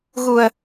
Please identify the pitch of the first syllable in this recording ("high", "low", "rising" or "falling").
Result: low